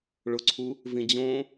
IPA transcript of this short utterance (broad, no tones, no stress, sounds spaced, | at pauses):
ɭ ʊ ǀʰ u | v ĩ d͡ʑ õ